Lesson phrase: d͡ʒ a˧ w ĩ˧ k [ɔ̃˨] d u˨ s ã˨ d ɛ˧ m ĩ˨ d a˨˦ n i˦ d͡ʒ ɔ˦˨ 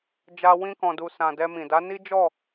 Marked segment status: correct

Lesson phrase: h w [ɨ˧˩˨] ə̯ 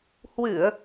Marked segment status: correct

